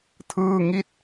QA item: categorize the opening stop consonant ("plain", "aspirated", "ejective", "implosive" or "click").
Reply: aspirated